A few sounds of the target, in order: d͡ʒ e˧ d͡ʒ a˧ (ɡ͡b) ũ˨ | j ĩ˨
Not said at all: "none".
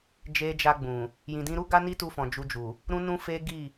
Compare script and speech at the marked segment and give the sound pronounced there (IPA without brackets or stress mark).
ɡ͡b